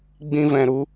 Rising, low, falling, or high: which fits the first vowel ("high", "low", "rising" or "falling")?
high